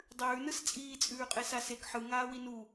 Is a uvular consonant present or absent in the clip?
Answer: present